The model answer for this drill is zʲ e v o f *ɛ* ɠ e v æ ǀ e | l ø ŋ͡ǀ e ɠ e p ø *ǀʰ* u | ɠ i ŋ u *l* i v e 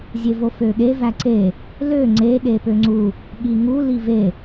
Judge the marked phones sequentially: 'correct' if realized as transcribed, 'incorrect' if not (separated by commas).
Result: incorrect, incorrect, correct